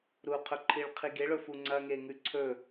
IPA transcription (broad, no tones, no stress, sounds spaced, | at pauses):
ɾ u qʰ ɵ ǃʰ i ɭ qʰ i ɡ e ɭ ɵ f u ŋ͡ǀ ɐ ŋ e ŋ ʉ ǀʰ ɵ